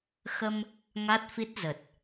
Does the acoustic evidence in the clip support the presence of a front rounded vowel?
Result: no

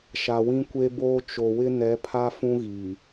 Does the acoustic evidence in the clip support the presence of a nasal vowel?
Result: yes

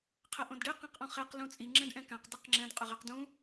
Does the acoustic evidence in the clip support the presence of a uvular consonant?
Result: yes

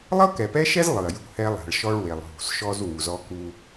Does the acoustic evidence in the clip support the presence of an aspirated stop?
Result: no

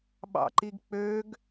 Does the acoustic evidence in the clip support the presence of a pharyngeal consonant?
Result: no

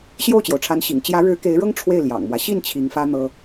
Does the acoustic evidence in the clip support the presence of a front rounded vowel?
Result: no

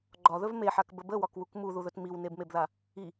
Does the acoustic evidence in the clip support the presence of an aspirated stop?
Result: no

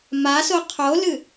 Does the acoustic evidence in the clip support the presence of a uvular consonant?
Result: yes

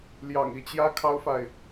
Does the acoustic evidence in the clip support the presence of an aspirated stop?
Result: yes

